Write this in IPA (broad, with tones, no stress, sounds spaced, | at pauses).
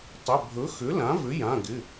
tˤ ʏ˩˧˩ bʱ ɵ˩˥ x ʏ˩˥ l ã˩˥ v ʏ˩˥ j ã˩˧˩ ɡ ɪ˩˧˩